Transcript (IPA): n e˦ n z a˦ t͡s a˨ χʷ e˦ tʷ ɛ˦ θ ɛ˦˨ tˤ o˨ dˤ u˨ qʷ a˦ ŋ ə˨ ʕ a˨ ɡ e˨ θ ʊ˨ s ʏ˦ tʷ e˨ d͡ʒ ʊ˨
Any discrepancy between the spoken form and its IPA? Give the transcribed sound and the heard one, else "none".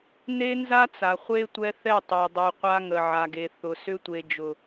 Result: none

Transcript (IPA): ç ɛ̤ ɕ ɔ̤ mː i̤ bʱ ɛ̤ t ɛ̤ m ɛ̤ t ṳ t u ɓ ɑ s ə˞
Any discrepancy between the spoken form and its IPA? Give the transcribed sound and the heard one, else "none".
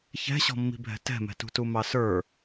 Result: ɓ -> m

